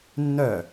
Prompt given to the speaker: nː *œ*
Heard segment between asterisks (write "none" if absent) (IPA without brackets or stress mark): œ